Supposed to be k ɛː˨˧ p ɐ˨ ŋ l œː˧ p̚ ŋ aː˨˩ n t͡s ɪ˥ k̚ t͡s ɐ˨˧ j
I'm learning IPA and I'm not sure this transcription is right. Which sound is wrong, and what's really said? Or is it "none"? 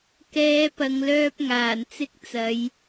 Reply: none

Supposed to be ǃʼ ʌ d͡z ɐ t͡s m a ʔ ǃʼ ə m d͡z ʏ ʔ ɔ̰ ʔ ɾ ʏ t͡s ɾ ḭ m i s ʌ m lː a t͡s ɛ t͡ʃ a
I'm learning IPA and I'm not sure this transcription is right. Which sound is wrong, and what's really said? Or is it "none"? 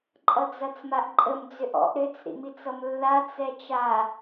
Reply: s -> t͡s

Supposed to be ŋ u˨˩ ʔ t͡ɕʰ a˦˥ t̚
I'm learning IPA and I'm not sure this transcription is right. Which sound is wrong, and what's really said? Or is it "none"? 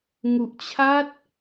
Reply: none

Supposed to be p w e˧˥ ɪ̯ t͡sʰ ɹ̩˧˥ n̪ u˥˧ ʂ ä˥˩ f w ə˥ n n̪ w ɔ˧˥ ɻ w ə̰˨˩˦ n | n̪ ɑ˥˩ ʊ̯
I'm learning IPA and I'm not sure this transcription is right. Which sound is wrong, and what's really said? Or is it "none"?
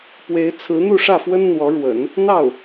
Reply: none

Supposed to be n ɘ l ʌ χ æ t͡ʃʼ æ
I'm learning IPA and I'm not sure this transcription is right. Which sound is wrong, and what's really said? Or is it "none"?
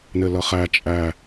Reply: none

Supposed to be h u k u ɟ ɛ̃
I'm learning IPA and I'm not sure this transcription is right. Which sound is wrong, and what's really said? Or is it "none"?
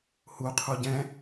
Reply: k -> qʰ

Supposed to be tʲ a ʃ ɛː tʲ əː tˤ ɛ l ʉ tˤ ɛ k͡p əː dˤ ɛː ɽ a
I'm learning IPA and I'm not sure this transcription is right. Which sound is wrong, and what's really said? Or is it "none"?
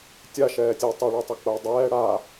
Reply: l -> ɭ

